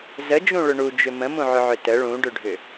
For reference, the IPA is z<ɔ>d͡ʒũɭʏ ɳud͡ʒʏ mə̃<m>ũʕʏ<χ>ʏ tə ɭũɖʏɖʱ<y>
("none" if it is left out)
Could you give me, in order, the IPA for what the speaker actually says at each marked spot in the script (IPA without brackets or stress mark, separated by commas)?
ə, m, ʕ, ʏ